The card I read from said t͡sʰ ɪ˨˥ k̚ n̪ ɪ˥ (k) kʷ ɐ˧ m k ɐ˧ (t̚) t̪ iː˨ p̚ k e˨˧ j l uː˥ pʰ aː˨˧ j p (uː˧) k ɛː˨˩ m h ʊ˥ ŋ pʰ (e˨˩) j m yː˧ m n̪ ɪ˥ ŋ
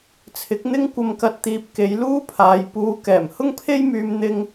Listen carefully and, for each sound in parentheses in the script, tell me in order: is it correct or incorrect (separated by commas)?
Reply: incorrect, correct, correct, incorrect